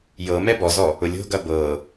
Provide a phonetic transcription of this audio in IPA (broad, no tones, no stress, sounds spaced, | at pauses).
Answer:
j ɤ m ɛ b ɔ z ɔ | ʊ lʲ o̤ ɡ ɐ b ɤ